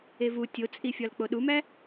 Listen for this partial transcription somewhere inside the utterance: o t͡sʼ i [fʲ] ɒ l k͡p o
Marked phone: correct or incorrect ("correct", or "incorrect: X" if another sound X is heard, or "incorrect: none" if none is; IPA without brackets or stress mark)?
correct